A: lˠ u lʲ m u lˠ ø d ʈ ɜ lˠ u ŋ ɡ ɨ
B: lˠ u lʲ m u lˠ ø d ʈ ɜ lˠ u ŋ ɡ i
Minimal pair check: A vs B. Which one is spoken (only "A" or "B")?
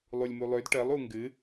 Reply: A